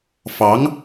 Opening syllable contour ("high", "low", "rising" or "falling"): rising